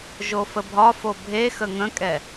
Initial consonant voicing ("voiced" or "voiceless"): voiced